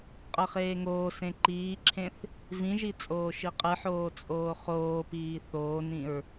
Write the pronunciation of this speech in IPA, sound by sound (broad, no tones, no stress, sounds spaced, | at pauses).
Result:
qʼ ʌ χ eː ŋ oː s ẽ ǃ iː ǁʰ ẽ θ | v ĩ ʒ i t͡sʼ oː ʃ i qʼ ɯ ħ oː t͡sʼ oː χ oː p iː θ oː n ĩ ɹ